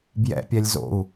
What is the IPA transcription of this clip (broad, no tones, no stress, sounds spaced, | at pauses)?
b j ɛ̰ pʲ ɛ lʲ z o̰ u̯